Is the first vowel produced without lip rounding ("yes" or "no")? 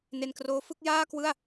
yes